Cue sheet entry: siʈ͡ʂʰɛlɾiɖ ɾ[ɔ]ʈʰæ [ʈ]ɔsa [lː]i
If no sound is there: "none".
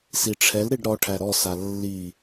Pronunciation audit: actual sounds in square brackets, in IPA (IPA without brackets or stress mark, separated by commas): ɔ, ɾ, lː